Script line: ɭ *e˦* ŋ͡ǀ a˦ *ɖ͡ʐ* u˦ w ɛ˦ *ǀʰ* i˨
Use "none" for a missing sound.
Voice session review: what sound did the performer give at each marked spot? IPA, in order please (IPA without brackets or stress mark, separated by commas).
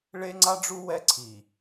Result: e˦, ɖ͡ʐ, ǀʰ